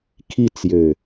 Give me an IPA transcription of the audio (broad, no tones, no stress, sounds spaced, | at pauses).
kʰ i t͡s j ø